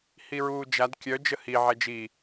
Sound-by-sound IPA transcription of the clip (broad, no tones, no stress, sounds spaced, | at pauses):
h i ɹ uː d͡ʒ a d kʲ œ d͡ʒ ə h i ʕ ɛ d͡ʒ i